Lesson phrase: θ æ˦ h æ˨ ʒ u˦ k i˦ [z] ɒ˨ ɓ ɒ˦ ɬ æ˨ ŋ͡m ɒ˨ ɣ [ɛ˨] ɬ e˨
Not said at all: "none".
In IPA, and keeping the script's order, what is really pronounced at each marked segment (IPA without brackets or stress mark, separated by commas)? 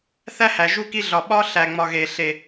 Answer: ɮ, e˨